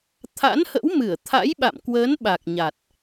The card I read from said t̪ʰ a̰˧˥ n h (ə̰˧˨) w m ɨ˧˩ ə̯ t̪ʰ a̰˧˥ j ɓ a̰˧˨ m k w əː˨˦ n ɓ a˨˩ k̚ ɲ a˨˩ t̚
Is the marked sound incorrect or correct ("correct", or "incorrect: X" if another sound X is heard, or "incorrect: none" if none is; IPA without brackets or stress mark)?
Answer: incorrect: ə̰˧˥